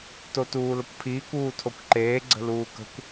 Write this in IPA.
totuːləkʷpʰiːkʷ uːtʰokʷǃeː ɡ͡ǀə̤luːkə̤kʷ

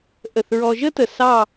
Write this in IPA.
ʔə˧˩θɹɔ˧ʒə˥tə˧˩ sɑ˥˧

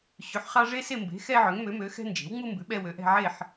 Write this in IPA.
ɕʉ˩˥ħχɑ˦ ʐe˦se˦˨mbe̤˩˥ xɛ˦ʕø˩˥ŋmø˩˥ mø˩˥xɛ̤˦nd͡ʒe̤˩˥wŋ͡mu˦ mbʉ˩˥ ɓɛ˦wø˩˥ʔɛ̤˦ ʕe˦˨ħ

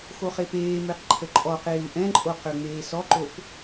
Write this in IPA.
xoχepeː meqǃʰəǃʼɔqeːu̯ ʔɛ̃ǃʼo qøŋ͡meːsɔǃop

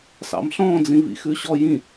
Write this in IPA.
sɑ̰mɬɔ̃ d͡zĩvḭxʉɕɔ jĩ

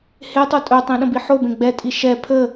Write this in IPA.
hetˤo tʼɵtˤĩ ɗə̃biħobẽ ɡ͡bɛtʼi ʃɛ pʰə

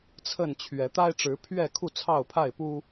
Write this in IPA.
t͡sʰə˥˨nt͡ɕʰɥɛ˨˦ t̪a˦ɪ̯ʈ͡ʂɻ̩˨˦pʰɥɛ˥˨kʰu˥˨ t͡sʰɑ˥˨ʊ̯pʰa˥˨ɪ̯pu˦

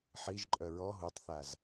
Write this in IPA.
ħiʒǃʼœ ɹɔ ɦutˤθaz

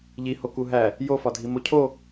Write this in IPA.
ʎihoku ɦæ | jofɒdʱimo cʰo

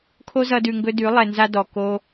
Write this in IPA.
kʰo˦zʌ˧dʉ˨ŋɡɵ˧ dʉ˨˦ lˠɛ˨nza˧ dɔ˨ ko˧

